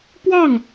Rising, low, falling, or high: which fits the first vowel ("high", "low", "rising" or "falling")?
falling